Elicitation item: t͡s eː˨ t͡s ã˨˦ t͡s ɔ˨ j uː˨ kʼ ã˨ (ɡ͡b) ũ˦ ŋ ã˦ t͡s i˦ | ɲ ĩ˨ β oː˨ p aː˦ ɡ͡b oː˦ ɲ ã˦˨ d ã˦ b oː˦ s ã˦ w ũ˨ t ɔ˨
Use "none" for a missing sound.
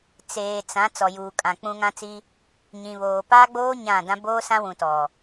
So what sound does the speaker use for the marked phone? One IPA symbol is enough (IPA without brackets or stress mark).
k͡p